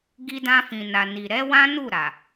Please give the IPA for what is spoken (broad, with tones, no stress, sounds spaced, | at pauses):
ɡ i˧ d ã˧ f ĩ˨ n a˨ n i˨ ɾ ɛ˨˦ w ã˦ n u˦˨ ɾ a˨